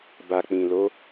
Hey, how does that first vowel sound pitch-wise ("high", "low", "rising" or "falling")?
low